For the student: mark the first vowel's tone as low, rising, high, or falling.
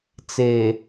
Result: low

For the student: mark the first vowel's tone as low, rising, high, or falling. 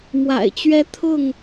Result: low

